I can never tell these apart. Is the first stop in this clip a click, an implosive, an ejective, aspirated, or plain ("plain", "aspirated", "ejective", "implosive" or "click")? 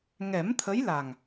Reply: aspirated